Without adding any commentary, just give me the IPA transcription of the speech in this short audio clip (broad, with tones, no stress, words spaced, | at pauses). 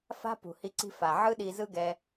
fa̤˦pṳ˨hi˧ǀi̤˧ fa˨ ʕɯ˦ɗi˧zɯ˦ ɡɛ˧